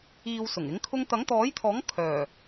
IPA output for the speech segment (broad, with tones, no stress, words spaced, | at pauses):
iː˨w sʊ˨˩ŋɪ˨˥ŋ kʰʊ˧ŋt̪ɐ˨˥ŋt̪ɔː˨˥jt̪ʰɔː˨˥ŋ kʰœː˨˩